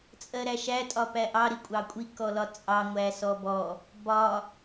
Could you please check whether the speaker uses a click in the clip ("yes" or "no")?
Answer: no